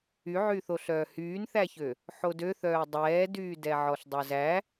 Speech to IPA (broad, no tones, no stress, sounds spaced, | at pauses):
y ʕ y θ o ɬ œː h yː n θ æ ç ø | ħ o d ø θ œː dˤ ɛː d yː d ɛ ʕ ɔ ɬ dˤ o z æ